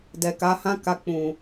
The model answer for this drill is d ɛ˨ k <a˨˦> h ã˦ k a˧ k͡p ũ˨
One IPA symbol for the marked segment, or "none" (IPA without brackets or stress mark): a˨˦